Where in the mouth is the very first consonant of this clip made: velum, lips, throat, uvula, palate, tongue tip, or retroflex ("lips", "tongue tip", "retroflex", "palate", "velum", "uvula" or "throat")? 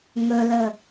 velum